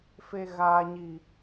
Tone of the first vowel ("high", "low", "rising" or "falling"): high